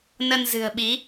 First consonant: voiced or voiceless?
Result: voiced